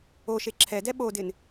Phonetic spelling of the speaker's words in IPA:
o ʃ e ǁʰ ɛ d ɛ ɓ o d ɪ n

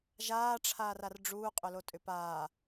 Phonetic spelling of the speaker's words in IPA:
ʒ aː ʈ͡ʂʰ aː r a r ɖ͡ʐ uː qʼ ʏ l o tʼ ʏ p aː

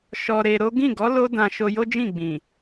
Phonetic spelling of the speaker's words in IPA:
ʃ ɔ˧ ɾ e˧ ɾ o˦ ɡ ĩ˦˨ ɡ ɔ˨˦ l o˦ d ã˧ ʃ o˧ j o˦ d͡ʒ ĩ˦˨ ɡ͡b ĩ˨

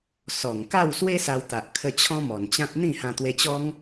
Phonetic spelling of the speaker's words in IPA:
s ɔ˨˩ ŋ k a˥˧ w s w e˦ s a˧ w t̪ a˨ ʔ kʰ ə˧ t͡ɕʰ ɔ̃˦ m ɔ˨˩ n t͡ɕ ã˦ t̚ n̪ ĩ˥˧ h ã˧ t̪ w e˧ t͡ɕ ɔ˦ ŋ

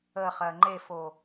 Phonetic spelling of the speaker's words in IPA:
ə χ ɜ ŋ͡ǃ e f o

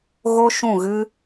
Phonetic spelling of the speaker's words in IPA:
ɣ o˦ ʃ ũ˦˨ ɣ ɨ˦

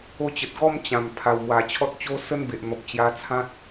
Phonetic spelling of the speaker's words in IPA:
o˧ t͡ɕ ə˨ t̚ ɡ ɔ˥˧ m t͡ɕ ã˨˩ m pʰ a˨˩ w m w a˨˩ t͡ɕʰ ɔ˦ t̚ t͡ɕ o˦ s ə˦ n b e˨ ʔ n̪ ɔ˨ p̚ t͡ɕ j a˧ t͡sʰ ã˦ t̚

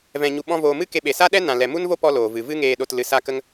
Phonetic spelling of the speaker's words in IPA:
v ɛ̃˨ ɲ u˨ ɓ ɔ̃˧ v oː˨ m ɨ˦ k e˧ ɓ e˨ s a˦ ɗ ɛ˦ n ã˨ l ɛ˨ m u˦ n v o˦ p ɔ˦ l oː˨ v ɨ˨ v ɨ˦ ŋ eː˧ ɗ o˧ t l ɨ˧ s a˦ k ə˦ ŋ

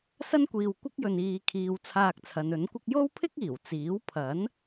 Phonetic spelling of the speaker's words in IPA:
s ɐ˥ n kʷ iː˨ w kʷ ɪ˥ k̚ j ɵ˨ n iː˨ kʰ iː˨ w t͡sʰ aː˧ k̚ t͡sʰ ɐ˨˧ n ɵ˨˥ n kʷ ɪ˥ k̚ j o˥ w pʰ ɪ˥ k̚ iː˨˩ w t͡s iː˨˥ w pʰ ɐ˨˥ n

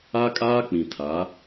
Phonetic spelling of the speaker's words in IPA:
a˦ kʼ aː˦ k͡p ĩ˨ tʰ a˨˦

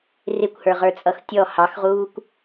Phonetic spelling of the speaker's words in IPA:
r ɪ kʷ h ə˞ ʁ ə˞ t͡sʼ ʌ x tʲ ɔ h ɑ x ʁ uː kʷ

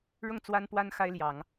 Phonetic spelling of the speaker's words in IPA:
ɻ ʊ˥˩ ŋ t͡s w a˥ n p w a˥ n x a˥ ɪ̯ l j ɑ˨˩˦ ŋ

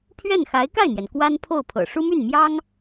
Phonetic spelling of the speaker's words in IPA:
pʰ ɥ ɛ˥˩ n x a˧˥ ɪ̯ k a˥˩ ɪ̯ n̪ j ɛ˩ n k w a˥ n pʰ o˥˩ ʊ̯ pʰ ɤ̰˨˩ ʂ u˥ m y˥˩ n m j ɑ˥ ŋ

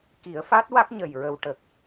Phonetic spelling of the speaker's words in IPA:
k i˨˩˦ ə̯ f a˦˥ t̚ w a˦˥ k̚ ɲ ə˨˩ j ɹ ə˨˩ w ʈ ə˨˩ k̚

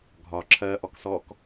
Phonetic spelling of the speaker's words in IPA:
ɡʱ ɒ ǁʰ ɜ ʔ ɔ k s ɔ k

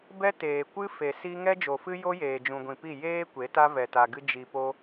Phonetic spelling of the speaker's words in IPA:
b ɛ˦ t eː˨ kʷ ɨ˦ f e˨ s i˦ ŋ ɛ˦ d͡ʒ o˨ f ɨ˦ j o˦ j eː˨ d͡ʒ ũ˨ ɡʷ ĩ˨ p i˦˨ j eː˦ kʷ e˨˦ t a˦ v ɛ˨ t a˨ ɡ ɨ˧ d͡ʒ i˨ p o˧

